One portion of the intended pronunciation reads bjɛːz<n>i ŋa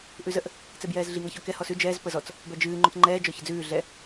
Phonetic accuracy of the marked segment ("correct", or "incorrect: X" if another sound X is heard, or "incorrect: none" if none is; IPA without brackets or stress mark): incorrect: ɮ